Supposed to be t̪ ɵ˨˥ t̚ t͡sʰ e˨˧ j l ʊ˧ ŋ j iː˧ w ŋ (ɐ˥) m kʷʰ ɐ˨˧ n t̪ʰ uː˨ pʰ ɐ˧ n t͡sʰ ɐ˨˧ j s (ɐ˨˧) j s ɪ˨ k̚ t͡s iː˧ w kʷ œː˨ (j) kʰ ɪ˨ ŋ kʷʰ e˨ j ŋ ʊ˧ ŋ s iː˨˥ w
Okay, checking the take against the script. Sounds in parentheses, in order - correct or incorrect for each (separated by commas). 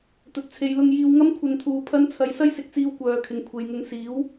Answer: correct, incorrect, incorrect